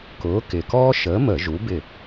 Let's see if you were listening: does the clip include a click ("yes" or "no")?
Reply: no